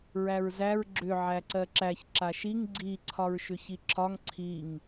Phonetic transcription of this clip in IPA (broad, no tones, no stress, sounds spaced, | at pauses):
ɹ æ ɹ z æ ɹ ɡ͡ǁ ʏ ʕ æ ǀ ɜ ǁ æ ç ǁ a ʃ i ŋ ɡ͡ǀ i ǀʰ ɒ ɹ ʃ ʏ ç i ǁʰ ɒ ŋ ǀʰ i ŋ